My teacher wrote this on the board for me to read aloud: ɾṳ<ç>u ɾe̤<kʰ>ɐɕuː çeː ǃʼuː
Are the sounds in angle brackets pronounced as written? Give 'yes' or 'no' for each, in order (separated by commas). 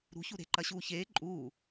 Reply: yes, no